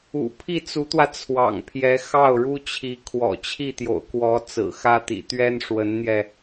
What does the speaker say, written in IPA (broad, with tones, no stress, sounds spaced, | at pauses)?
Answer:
ṵ˨˩ pʰ i˥˩ t͡s u˧˥ t̪ w ä˧ t͡sʰ w ɑ̰˨˩ ŋ pʰ j ɛ˧˥ x ɑ˥˩ ʊ̯ ɻ u˥ t͡ɕʰ i˧˥ kʰ w ɔ̰˨˩ t͡ɕʰ i˥˩ t̪ j o̰˨˩ ʊ̯ k w ɔ˧˥ t͡s ɹ̩˨˩ x ä˥ t̪ ḭ˨˩ t̪ ɥ ɛ˥ n ʂ w ə˧˥ n n̪ j ɛ˧